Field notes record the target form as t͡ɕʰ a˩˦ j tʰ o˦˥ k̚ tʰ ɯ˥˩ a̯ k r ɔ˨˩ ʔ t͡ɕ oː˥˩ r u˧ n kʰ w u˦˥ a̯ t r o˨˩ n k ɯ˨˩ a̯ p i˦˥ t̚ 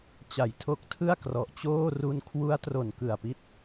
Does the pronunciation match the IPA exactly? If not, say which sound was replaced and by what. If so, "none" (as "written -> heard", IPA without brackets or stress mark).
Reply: t͡ɕʰ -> t͡ɕ